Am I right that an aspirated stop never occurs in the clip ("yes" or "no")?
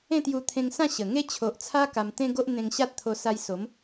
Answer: no